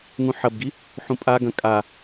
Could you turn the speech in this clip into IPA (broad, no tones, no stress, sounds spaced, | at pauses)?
ŋ ũ ħ ɐ b ɡ i | ħ ũ pʼ a ɡ ɐ̃ kʼ a